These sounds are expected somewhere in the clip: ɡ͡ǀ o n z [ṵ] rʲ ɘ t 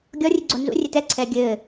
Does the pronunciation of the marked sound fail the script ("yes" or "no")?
no